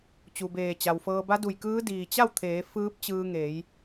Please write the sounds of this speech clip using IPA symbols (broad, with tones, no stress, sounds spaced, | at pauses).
t͡ɕ u˩ b eː˧˩ t͡ɕ a˩ w f ɤː˧ b a˧˥ d u˧˩ j k ɯː˧˥ d iː˩ t͡ɕ a˥˨ w t̪ʰ eː˩˧ f ɯː˧˥ p̚ t͡ɕ ɯː˧ ŋ e˩˧ j